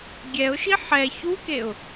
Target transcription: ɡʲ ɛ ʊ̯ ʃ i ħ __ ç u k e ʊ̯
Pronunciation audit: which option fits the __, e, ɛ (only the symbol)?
ɛ